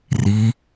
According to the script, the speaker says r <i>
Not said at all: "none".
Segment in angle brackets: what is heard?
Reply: i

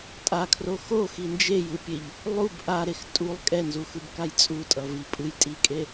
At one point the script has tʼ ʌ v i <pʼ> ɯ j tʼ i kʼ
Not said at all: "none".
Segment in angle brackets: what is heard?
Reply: pʼ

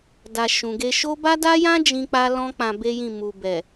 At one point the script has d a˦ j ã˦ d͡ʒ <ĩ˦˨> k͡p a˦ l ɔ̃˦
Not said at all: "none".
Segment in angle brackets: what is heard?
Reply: ĩ˦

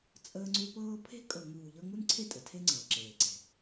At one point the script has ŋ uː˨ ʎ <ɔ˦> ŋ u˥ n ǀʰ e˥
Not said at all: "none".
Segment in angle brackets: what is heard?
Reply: ɤ˦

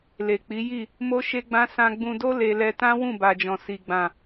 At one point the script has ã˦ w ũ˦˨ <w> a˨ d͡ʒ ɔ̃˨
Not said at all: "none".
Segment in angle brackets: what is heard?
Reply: b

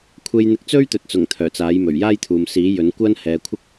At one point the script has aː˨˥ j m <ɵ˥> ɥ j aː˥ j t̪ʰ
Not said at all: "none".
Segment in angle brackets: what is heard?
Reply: ɵ˨˩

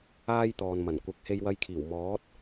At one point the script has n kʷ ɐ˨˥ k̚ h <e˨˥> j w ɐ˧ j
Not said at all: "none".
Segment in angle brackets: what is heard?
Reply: e˧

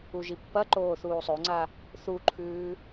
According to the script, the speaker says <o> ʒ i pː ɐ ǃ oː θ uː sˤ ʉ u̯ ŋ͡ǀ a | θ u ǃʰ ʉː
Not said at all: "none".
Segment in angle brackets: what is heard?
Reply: u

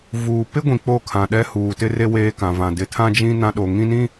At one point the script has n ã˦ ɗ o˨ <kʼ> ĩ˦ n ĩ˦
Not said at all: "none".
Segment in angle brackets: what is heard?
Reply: ŋ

